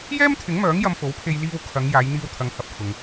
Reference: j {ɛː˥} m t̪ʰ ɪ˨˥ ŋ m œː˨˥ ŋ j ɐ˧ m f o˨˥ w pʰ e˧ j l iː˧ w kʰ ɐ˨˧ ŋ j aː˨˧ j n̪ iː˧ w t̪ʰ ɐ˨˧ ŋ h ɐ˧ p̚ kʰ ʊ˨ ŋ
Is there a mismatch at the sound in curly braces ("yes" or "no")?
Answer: no